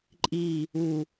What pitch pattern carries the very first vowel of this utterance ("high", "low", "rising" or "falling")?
falling